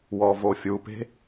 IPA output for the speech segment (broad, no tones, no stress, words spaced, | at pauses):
wɔvofʲupe̤